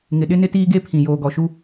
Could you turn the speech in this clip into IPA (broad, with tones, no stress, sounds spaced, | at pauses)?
ŋ ɪ˨ ɗ ɪ˦ n ɪ˦ t iː˦ ɡ e˦ pʰ ĩ˨ j oː˨ ɡ ɔ˨ ʃ u˦